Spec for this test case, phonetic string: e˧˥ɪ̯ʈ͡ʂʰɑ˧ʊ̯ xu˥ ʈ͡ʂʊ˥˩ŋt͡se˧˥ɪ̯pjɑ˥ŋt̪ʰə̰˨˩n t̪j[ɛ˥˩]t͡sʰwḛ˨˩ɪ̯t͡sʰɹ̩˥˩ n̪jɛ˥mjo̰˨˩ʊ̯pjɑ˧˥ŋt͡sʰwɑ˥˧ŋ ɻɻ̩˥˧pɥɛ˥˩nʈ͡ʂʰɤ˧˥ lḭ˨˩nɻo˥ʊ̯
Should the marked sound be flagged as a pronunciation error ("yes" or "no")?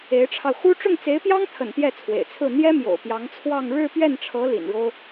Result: no